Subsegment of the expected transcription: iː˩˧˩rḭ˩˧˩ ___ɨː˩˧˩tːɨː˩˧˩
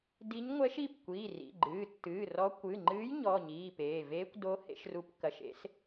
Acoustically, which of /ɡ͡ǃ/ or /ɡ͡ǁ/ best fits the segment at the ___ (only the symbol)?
ɡ͡ǃ